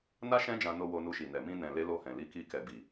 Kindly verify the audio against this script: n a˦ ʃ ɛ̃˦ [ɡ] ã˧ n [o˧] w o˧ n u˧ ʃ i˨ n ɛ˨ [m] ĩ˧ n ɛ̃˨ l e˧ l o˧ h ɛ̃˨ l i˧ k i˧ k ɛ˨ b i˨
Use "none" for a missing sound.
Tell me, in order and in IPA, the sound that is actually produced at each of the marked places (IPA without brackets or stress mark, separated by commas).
d͡ʒ, o˧, m